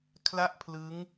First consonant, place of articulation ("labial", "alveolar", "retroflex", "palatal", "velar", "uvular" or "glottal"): velar